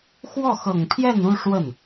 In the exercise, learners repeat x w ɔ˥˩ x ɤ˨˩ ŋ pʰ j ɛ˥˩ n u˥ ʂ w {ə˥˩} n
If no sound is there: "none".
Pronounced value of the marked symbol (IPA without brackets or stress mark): ə˥˩